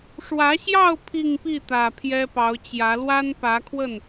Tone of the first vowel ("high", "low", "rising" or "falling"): rising